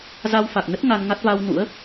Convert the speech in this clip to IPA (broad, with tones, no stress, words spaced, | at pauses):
za˧wfa˨˩k̚nə˦˥t̚ ŋa˧nŋa˦˥t̚ va˧w nṵ˧˥ə̯